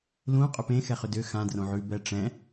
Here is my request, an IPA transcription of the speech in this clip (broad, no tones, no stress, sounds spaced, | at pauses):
l ũ qʼ ʏ p ẽ x ɛ χ ʏ d ʏ x ã d r õ ʕ ʉ b ɛ ʈ͡ʂ ɛ̃